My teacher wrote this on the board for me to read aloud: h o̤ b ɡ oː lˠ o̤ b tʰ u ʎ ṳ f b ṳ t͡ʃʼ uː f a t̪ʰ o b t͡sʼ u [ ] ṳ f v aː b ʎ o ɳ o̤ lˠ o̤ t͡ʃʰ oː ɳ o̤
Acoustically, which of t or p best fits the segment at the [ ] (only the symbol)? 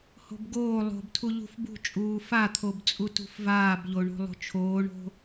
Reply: t